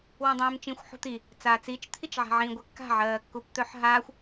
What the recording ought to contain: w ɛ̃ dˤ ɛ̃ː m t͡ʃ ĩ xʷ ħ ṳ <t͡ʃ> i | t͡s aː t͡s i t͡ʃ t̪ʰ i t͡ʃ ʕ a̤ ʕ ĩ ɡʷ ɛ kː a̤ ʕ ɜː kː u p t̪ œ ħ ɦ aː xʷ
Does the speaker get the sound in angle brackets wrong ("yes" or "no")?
yes